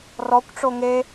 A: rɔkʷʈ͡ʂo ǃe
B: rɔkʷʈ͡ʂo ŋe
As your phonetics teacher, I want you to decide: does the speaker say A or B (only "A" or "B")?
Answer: B